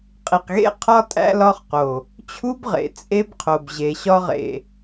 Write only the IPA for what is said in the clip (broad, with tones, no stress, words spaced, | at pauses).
qʼi˨qɣḛ˦ qʰɒ˦ tʼæ̰˦lɒ˦χqo˨ | t͡ɕʰu˦bʁḛ˨ t͡sʼe˦bqʰo˨b ʑe˨ɕɒ˦ʁḛ˨